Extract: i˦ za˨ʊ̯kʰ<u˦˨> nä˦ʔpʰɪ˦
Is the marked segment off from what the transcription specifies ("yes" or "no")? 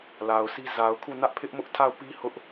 no